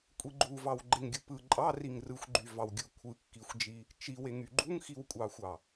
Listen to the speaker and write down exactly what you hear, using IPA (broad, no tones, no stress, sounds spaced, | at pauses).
kʷʼ i ɡ͡ǃ u v ɑ w ɡ͡ǃ e ŋ ɡʲ ɯ p ɯ ǃʼ ɑ r i ŋ r ɯ xʷ ɡ͡ǃ y v ɑ w ɡʲ ɯ kʷʰ ɯ kː i xʷ d͡ʒ i | t͡ʃ i w e ŋ y ɡ͡ǃ u ŋ x i w kʷʼ ɑ xʷ ɑ